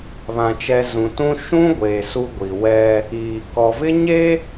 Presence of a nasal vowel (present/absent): present